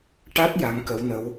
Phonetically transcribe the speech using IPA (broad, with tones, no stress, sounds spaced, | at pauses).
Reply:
ʈ a˦˥ t̚ j a˧˥ ŋ k ə˧˥ w n ə˧˥ w